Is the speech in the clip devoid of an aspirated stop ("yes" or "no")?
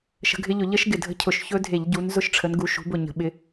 no